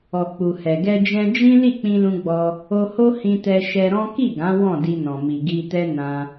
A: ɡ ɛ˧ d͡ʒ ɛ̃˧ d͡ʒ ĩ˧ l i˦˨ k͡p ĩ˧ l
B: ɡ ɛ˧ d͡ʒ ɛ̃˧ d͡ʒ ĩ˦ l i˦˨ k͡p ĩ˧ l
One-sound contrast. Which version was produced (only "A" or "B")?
B